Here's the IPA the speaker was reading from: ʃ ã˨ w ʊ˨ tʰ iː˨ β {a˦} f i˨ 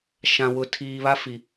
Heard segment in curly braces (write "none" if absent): a˦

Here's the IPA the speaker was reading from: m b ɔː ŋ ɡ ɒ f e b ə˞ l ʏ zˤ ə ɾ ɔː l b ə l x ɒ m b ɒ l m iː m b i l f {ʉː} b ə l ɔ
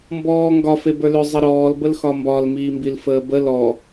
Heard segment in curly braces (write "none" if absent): əː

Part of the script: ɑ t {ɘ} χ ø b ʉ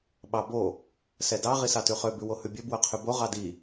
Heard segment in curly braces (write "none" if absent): ʉ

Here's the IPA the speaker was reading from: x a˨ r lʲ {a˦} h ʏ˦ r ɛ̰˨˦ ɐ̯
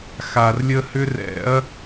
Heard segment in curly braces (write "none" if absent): ə˦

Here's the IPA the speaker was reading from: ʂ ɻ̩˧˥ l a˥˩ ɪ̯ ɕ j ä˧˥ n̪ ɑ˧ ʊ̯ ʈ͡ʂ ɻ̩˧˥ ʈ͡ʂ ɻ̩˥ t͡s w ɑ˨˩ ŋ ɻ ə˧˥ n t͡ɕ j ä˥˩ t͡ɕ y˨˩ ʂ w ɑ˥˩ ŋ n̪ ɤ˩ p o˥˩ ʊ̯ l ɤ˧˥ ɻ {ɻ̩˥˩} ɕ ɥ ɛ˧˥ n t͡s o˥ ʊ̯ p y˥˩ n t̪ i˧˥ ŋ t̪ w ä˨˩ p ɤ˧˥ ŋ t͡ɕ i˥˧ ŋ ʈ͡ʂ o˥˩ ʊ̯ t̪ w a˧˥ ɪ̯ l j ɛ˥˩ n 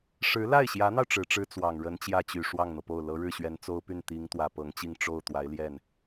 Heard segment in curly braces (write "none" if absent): ɻ̩˥˩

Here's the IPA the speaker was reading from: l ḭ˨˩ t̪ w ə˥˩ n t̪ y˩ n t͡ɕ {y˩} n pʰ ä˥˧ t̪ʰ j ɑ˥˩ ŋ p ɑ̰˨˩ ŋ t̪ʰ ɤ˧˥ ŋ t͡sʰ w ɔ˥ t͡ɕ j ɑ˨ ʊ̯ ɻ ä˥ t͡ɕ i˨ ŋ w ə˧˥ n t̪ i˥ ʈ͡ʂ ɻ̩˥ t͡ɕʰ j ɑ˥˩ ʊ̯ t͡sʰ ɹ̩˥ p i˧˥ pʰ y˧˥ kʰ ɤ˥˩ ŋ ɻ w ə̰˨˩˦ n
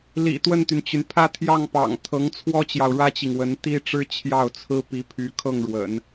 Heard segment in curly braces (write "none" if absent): y˩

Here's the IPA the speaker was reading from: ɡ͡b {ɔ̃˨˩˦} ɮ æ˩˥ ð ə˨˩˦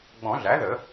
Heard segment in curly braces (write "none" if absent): ɔ̃˨˩˦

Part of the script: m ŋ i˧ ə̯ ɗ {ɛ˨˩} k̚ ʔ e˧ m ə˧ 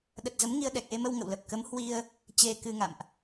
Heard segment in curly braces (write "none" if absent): ɛ˨˩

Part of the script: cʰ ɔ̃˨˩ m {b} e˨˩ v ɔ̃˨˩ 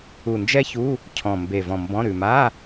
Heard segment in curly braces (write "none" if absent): b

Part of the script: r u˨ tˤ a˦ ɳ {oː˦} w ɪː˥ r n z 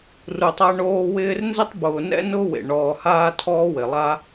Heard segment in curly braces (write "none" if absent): oː˦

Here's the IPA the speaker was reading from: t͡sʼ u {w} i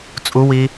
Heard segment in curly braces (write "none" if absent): w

